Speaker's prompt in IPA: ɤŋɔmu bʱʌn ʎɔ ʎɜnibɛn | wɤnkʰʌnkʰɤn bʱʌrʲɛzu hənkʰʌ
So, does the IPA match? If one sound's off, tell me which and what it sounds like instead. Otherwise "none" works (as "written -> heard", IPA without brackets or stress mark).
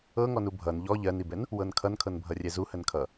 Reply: m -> n